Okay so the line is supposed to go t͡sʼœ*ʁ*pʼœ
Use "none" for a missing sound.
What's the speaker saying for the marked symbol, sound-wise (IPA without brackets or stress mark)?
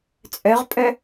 ʁ